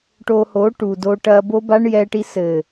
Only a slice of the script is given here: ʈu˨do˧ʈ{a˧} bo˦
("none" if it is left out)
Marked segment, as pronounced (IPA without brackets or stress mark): ɐ˧